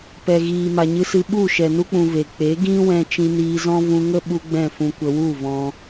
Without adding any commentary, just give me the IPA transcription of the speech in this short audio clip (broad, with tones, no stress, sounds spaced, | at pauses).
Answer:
p ɛ˨ ɣ iː˨ m a˨ ɲ ɨ˧ s ɨ˧ ɓ u˦˨ ʃ ɛ˨ n u˦ k͡p ũ˧ v e˨ k͡p e˨˦ ɡ ĩ˦ w ɛ̃˧ t͡ʃ ĩ˧ n iː˧ z ɔ̃˦ v ũ˧ ŋ ə˦ ɓ u˧ ɡ͡b ɛ̃˦˨ f ũ˧ kʷ ə˧ w u˦˨ v ɔ̃˧